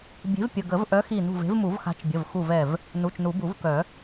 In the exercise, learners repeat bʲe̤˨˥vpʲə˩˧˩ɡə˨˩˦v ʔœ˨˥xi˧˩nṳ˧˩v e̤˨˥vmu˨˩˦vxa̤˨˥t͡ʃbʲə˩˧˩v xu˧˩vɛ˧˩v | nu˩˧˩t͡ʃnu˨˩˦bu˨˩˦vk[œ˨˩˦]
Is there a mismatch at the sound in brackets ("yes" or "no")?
no